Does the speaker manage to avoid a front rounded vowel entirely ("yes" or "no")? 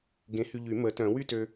no